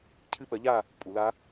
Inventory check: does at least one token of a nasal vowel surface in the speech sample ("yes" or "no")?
no